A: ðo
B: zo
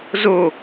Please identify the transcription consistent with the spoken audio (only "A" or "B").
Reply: B